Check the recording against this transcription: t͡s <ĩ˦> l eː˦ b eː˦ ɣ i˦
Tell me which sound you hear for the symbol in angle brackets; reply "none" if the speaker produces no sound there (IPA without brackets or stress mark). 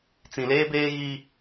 ĩ˨